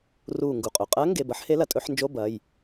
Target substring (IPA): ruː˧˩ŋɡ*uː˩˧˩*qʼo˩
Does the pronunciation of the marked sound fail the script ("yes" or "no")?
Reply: yes